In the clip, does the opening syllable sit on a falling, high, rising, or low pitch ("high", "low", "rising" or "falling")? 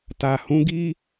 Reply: low